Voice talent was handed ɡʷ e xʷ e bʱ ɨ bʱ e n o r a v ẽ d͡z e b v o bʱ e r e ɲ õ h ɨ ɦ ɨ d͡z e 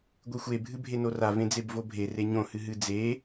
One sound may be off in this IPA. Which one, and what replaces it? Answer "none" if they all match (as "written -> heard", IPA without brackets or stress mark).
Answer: none